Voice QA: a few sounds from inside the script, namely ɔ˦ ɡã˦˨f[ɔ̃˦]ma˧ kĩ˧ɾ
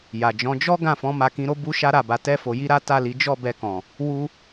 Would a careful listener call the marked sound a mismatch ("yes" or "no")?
yes